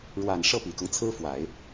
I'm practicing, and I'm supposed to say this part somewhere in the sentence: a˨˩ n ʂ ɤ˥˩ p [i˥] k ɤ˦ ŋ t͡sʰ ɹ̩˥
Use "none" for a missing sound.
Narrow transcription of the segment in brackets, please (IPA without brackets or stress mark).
i˨˩